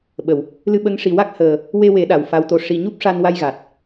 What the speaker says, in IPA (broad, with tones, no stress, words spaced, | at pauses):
ɓə˨˩˨w | lɨ˧ɓə˧˥ŋ ʂi˨˩ wa˦˥k̚həː˨˩ | we˧we˨˩˦ ɗa˨˩wfa˧˥wt̪o˧ʂi˧ ɲu˦˥p̚ʂa˧nwa˧jɣa˨˩t̚